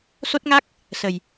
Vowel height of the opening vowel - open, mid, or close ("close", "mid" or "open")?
mid